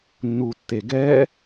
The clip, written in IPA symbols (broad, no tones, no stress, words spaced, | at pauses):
nːutːeɡɛ